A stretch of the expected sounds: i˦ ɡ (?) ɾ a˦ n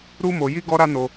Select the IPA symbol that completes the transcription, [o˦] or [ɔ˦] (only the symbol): ɔ˦